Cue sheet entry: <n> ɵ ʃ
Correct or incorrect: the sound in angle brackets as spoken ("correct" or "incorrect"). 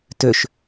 incorrect